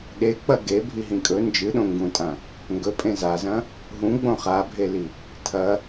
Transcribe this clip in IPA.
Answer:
ɗ e k͡p ɐ ɡ e bʱ i ɦ ĩ kʼ ɵ n d͡ʒ ɨ ɗ õ ŋ ɡ ũ tʼ ã | ŋ ɡ ɵ pʼ ẽ z a z ɐ̃ | ɦ ũ ɡ͡b õ χ a bʱ e l i | tʰ ɐ

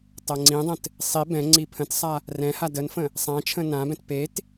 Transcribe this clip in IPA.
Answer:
tˤ ɤ ŋ͡ǀ ĩ dˤ ə̃ t | sˤ i b ɛ̃ ŋ͡ǀ i pʰ ə̃ t sˤ a | r ɛ̃ h a d ə n f ə̃ | sˤ ã t͡ʃʰ ə̃ n ã b ɛ̃ t p e t

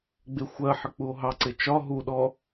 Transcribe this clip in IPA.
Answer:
ɡ͡b ɪ xʷ ɜ ħ ə k͡p u o̯ ɦ ɑ ǀ ɪ t͡ʃ ɒ ɦ u ɗ ɔ

